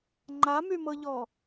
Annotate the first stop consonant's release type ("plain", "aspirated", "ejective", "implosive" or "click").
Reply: click